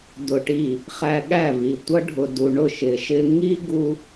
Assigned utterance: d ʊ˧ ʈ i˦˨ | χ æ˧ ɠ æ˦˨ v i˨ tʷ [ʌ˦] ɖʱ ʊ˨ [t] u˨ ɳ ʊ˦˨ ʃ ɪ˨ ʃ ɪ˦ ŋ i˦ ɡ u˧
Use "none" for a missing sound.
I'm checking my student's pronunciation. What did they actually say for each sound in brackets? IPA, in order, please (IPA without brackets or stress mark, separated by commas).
ʌ˦, d